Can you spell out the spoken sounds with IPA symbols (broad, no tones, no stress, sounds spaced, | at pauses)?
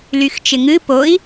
l y x t͡ʃ ɪ ŋ ɨ p o i̯